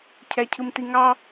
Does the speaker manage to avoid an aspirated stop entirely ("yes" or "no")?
no